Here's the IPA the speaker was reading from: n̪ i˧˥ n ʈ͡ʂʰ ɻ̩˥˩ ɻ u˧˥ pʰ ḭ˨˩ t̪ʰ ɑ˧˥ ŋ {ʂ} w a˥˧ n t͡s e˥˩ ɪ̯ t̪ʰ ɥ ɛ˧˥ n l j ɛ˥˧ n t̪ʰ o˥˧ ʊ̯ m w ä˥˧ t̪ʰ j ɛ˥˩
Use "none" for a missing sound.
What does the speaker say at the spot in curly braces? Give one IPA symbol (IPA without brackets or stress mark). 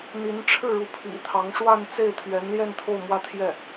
ʂ